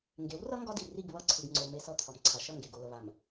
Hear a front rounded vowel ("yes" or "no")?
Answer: no